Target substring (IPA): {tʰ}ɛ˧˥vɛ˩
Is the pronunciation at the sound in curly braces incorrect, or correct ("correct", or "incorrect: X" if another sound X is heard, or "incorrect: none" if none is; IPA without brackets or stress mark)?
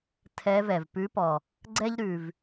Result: correct